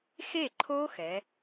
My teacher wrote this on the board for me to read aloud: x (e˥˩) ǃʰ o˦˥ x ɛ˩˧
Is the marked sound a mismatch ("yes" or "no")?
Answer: no